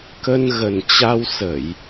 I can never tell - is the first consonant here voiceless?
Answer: yes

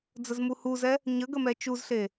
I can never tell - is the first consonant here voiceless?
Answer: no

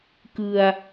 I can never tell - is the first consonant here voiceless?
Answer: yes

